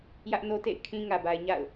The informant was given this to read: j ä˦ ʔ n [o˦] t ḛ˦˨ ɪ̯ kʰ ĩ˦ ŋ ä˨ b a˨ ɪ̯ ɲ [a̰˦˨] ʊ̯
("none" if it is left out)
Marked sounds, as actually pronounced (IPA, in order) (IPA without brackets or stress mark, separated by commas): o˦, a̰˦˨